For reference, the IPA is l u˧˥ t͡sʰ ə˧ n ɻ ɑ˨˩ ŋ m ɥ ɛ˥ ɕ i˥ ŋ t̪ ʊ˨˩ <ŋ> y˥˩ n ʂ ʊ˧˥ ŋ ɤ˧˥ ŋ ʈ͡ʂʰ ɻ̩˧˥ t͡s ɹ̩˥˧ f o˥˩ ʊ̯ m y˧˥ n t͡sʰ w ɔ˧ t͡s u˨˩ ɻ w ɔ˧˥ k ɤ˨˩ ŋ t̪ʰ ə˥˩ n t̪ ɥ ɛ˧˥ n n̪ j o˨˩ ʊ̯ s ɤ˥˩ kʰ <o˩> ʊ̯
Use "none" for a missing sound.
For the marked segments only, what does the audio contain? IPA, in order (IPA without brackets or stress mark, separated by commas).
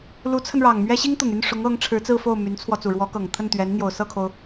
ŋ, o˩